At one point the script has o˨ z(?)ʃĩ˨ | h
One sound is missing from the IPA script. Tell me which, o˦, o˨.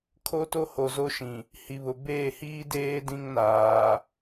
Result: o˦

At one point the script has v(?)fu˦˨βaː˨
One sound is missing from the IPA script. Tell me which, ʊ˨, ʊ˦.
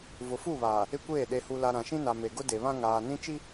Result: ʊ˨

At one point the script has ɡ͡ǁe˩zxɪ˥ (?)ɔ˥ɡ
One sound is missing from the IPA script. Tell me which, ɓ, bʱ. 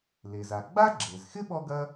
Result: ɓ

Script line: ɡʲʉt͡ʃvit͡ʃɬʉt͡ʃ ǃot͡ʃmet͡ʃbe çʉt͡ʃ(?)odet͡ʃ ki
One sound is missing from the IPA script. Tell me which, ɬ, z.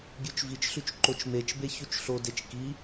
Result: ɬ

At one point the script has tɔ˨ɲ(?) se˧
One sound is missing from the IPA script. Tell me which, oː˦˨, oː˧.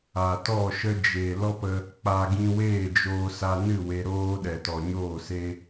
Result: oː˦˨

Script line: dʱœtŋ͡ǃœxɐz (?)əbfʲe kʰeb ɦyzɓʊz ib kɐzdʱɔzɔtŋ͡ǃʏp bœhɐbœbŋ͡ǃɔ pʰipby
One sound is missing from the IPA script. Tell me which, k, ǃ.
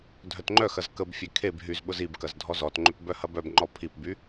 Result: k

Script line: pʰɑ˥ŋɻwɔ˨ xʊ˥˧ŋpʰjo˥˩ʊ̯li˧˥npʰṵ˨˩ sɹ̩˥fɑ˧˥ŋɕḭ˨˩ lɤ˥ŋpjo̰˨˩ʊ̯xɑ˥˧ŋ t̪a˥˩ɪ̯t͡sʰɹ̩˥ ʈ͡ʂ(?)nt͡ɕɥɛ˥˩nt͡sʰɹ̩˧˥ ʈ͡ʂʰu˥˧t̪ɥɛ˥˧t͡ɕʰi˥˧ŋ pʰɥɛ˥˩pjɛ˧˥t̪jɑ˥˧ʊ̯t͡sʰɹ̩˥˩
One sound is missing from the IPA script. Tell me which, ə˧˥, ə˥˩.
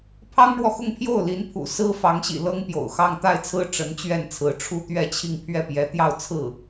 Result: ə˧˥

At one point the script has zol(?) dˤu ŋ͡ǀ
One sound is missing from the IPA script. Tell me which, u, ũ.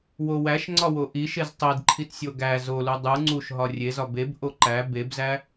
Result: u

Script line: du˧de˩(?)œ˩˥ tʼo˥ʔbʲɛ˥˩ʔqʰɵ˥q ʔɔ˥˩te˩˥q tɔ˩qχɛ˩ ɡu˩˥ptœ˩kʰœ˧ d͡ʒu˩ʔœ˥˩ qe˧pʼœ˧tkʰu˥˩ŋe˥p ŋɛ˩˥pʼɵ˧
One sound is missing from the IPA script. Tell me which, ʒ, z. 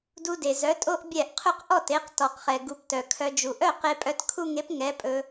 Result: z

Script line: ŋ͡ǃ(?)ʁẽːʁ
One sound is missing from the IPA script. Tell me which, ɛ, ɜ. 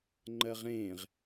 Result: ɜ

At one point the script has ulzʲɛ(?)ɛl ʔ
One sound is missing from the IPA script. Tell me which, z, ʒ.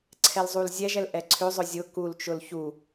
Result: ʒ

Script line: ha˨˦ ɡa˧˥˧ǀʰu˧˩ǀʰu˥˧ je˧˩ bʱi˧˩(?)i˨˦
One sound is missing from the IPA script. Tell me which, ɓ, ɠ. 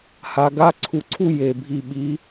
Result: ɓ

